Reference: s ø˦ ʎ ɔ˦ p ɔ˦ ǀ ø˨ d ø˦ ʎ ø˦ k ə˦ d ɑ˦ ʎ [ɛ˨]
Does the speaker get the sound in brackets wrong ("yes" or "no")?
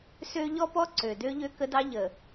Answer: yes